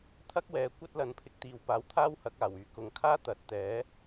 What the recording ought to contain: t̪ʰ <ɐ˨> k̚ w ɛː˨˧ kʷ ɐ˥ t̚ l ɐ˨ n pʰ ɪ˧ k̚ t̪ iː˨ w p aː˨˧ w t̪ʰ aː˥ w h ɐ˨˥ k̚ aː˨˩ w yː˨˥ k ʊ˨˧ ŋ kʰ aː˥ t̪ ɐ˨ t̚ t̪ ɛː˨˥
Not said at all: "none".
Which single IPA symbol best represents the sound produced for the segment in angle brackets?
ɐ˥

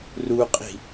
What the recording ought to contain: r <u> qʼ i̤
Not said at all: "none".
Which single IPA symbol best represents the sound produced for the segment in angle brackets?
u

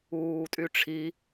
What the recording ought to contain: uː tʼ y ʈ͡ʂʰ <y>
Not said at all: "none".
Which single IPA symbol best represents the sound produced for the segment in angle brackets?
i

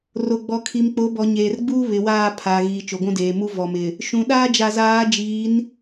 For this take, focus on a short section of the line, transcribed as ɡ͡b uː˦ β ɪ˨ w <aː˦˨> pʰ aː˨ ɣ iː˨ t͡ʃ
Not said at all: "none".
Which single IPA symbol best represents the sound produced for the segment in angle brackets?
aː˦˨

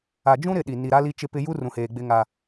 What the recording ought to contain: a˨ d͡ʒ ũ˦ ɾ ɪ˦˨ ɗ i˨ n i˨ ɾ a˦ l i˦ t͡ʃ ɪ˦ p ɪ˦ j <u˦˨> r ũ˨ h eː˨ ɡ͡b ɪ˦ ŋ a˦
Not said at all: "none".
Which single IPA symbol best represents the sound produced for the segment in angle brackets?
u˦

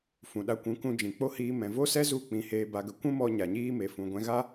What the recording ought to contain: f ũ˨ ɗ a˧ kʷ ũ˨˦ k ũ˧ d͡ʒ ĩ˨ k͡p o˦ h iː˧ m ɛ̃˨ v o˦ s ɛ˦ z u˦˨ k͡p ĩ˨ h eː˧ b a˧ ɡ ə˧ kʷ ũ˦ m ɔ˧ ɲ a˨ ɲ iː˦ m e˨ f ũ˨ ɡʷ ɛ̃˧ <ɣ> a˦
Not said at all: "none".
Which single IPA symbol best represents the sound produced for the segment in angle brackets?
ɣ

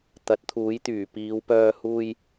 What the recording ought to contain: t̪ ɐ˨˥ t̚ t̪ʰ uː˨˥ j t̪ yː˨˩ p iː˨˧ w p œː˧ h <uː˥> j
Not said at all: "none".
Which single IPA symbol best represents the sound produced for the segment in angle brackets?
uː˧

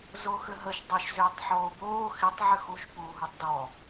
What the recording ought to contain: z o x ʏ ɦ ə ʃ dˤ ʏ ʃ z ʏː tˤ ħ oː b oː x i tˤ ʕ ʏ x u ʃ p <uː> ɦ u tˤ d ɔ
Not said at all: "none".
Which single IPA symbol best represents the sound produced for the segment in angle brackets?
uː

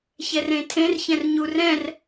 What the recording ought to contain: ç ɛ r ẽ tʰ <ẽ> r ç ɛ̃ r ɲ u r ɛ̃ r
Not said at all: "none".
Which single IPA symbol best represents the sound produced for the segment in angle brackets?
ẽ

